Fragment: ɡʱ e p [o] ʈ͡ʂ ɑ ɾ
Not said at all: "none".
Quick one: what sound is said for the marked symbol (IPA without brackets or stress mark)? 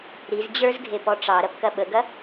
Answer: ɔ